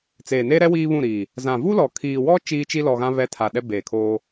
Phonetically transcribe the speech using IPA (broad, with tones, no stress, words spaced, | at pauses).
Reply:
t͡seː˨neː˦ɾɛ˦ wiː˦βũ˦˨ɾiː˨ | zã˨vu˦lɔ˨ kʰiː˨wɔ˦ t͡ʃiː˦t͡ʃi˦lɔ˨ɣã˦ βɛ˦tʰa˨ɗɛ˦ beː˨kʰoː˦